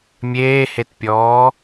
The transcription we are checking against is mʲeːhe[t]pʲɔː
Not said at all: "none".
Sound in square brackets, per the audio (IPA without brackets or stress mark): t